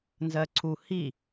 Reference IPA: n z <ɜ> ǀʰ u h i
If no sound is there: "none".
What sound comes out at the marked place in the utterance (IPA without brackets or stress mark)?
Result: ɜ